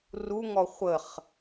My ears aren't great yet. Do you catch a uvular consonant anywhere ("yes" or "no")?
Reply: yes